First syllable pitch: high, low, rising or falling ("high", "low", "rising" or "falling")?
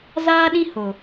high